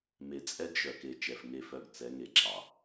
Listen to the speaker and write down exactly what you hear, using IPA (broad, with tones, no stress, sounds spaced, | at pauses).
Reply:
m e˨ t͡sʼ ɛ˦ ɡ ʒ œ˨ k e˨ t͡ʃ ɛ˨ f ŋ e˦˨ f œ˦˨ ɡ t͡s ɛ˨˦ ŋ e˨ ǁ ɑ˨